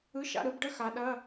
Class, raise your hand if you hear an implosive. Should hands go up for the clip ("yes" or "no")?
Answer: yes